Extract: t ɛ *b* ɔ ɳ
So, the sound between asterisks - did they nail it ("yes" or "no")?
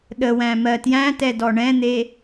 no